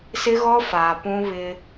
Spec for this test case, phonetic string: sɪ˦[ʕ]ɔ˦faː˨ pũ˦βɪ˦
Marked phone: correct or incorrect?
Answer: incorrect